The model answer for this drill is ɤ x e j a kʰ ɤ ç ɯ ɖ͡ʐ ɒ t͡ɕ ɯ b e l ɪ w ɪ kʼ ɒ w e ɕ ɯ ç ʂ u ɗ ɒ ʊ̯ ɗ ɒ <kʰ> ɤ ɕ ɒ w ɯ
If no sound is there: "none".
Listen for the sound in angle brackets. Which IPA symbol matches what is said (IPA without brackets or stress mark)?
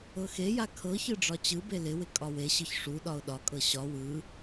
kʼ